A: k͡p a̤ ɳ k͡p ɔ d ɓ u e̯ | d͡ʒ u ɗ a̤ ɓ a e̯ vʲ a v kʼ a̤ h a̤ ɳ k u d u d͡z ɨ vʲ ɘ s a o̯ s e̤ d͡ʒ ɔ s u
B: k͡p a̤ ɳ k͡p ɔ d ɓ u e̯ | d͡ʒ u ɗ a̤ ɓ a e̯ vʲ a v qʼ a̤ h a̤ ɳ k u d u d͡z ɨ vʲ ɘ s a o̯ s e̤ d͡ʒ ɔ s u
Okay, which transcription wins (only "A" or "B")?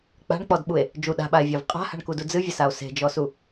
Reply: B